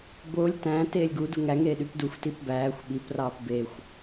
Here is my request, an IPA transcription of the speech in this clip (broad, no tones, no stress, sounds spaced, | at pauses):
b o lʲ t æ̃ t eː lʲ ɡ u d u ŋ æ ŋ eː ɗ y p d u xʷ t i p b æː xʷ ɓ i p r ɑː p b e xʷ